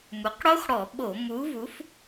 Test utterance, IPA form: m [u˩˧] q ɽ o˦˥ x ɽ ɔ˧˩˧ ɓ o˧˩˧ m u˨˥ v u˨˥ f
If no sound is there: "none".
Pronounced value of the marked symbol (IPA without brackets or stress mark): u˩˧